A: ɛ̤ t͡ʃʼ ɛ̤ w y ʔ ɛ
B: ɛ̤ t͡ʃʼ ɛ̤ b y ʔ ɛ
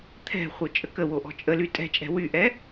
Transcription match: A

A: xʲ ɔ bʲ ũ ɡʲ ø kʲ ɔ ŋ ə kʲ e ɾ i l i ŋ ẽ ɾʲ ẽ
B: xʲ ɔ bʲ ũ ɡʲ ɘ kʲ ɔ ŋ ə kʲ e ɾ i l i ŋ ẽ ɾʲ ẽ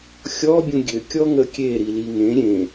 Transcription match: A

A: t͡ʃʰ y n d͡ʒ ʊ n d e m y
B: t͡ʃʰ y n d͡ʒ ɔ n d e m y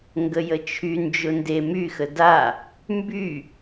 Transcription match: A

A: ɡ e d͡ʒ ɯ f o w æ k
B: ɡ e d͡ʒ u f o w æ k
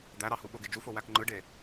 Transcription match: B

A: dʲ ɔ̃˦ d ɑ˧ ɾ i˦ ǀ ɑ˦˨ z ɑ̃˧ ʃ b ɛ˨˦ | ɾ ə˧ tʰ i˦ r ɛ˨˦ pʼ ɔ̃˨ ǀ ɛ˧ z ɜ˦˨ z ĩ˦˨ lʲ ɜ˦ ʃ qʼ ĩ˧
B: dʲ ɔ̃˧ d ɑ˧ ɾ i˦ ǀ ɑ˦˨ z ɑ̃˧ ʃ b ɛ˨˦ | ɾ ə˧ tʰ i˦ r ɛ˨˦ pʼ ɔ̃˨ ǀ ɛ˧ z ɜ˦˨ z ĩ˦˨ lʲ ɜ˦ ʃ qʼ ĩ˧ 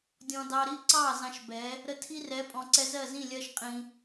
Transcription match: B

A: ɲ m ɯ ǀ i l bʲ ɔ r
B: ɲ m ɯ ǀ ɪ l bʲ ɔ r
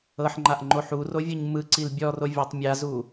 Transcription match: A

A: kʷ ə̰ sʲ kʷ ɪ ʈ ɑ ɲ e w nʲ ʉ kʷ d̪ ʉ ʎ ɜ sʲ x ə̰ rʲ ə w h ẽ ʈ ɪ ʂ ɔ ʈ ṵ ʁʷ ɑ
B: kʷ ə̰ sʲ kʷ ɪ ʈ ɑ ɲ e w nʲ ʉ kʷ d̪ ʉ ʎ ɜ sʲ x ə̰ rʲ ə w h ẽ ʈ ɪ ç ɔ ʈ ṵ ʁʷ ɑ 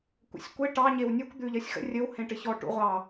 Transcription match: B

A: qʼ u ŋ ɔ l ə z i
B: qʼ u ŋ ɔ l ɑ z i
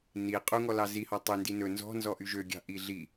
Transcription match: B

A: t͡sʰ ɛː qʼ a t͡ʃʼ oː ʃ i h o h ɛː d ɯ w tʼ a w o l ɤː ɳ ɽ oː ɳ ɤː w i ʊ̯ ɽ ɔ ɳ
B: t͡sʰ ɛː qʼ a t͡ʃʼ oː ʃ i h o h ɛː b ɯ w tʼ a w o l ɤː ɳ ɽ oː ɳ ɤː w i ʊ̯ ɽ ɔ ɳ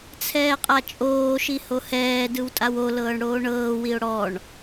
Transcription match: A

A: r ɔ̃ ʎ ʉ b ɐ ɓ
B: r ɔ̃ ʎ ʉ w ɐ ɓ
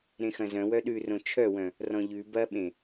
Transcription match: A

